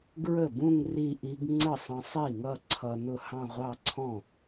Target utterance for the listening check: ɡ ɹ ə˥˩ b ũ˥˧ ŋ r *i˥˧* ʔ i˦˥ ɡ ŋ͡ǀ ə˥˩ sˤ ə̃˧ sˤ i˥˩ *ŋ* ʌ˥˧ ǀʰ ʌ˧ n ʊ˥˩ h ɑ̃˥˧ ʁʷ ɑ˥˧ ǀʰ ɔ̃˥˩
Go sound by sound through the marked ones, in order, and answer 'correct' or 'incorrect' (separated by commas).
correct, correct